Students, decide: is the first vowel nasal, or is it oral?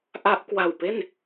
oral